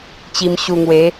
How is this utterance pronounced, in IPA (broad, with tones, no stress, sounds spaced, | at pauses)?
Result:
t͡ɕ i˧ m ɕ u˧ ŋ w e˨˦